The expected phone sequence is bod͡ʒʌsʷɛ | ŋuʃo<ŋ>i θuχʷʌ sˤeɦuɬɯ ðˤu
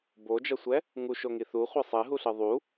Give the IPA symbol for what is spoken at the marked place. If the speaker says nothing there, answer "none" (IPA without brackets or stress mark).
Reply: ŋ